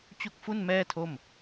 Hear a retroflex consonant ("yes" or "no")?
no